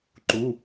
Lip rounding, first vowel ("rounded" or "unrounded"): rounded